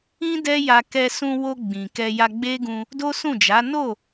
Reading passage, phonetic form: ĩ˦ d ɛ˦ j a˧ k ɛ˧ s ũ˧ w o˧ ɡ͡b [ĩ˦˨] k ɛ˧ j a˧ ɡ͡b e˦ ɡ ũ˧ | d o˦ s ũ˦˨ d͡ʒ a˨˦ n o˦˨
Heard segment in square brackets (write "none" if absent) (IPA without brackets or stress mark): ĩ˨